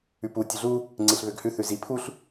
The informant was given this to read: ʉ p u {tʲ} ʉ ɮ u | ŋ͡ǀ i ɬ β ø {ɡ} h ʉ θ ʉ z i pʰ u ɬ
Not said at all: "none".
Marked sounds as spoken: tʲ, ɡ

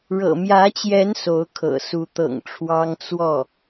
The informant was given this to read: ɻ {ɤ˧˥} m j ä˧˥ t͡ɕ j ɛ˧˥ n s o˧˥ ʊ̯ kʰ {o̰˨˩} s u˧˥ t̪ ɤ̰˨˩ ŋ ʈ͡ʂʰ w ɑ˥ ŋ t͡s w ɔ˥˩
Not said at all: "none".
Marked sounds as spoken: ɤ̰˨˩, ɤ̰˨˩

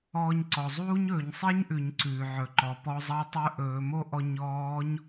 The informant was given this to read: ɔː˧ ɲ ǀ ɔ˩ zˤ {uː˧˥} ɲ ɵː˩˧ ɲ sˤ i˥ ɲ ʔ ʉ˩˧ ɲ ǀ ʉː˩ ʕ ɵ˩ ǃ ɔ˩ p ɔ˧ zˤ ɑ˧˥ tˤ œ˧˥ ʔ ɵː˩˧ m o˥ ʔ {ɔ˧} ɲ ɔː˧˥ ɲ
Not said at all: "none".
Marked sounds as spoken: uː˥, ɔ˧

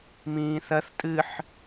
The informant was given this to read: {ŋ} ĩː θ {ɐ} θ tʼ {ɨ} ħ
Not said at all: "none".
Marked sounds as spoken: m, ɐ, ɨ

